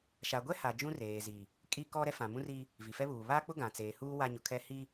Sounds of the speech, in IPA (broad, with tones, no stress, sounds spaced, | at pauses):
ʃ a˨ ɡʷ ɛ˦ h a˨ d͡ʒ ũ˦ r eː˨ z i˨ | kʼ i˦ k ɔ˦ ɾ ɛ˦ f ã˨ m ũ˦ r iː˦ | v i˨ f ɛ˦ β uː˨ β aː˦ k͡p ʊ˦ ɡ ã˨ t͡s eː˨ h uː˦ w a˦ ɲ ʊ˨ kʰ ɛ˦ h i˦